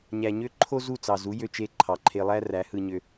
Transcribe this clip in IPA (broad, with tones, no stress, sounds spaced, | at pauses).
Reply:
ɲ æ˨ ɲ ø˧ ǃʰ o˦ z u˦˨ t͡s ɑ˨ z u˨˦ j ø˧ t͡ʃ e˧ ǃʰ ɑ˨ ǃʰ e˧ lˠ æ˦ r æ˨˦ h ɯ˧ ɲ ø˧